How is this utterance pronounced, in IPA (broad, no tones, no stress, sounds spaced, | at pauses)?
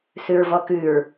s ʉ ɹ v ɔ k ʉ ɹ